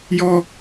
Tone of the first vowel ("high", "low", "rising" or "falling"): high